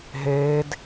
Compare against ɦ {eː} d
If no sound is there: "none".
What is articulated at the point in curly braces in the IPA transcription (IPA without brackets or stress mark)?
eː